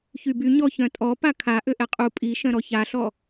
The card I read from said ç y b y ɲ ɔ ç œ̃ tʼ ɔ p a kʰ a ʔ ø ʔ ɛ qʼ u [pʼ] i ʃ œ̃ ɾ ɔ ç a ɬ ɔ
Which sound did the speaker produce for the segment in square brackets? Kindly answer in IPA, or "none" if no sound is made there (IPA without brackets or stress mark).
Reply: pʼ